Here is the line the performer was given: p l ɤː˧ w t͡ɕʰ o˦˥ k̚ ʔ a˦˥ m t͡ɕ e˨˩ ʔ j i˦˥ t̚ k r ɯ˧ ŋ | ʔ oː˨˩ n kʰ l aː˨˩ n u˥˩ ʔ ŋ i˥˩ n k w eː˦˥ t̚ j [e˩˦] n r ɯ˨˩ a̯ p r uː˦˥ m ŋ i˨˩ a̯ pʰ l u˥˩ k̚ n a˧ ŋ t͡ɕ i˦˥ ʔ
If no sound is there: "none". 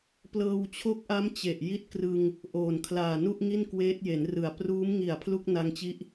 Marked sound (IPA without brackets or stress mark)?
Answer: e˩˦